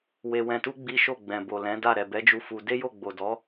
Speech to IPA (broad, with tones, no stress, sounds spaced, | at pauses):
w e˧ w ɛ̃˧ t u˦ ɡ͡b i˦ ʃ o˦˨ ɡ͡b ɛ̃˨ b o˨ l ɛ̃˨˦ d a˦˨ ɾ ɛ˨ b ɛ˨˦ d͡ʒ u˧ f u˧ d e˦ j o˦˨ ɡ͡b o˨ d ɔ˨˦